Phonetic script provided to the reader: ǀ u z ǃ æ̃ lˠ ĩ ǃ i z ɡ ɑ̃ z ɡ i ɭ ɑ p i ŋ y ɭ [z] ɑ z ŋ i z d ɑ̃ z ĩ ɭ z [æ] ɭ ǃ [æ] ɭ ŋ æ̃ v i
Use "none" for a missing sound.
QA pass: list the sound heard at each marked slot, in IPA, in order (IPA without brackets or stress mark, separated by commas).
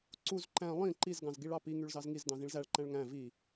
z, æ, æ̃